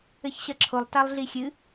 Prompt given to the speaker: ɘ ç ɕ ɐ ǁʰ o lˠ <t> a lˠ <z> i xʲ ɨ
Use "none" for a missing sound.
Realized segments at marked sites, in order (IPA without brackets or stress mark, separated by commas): t, ɮ